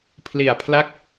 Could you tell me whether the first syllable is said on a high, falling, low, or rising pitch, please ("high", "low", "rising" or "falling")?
low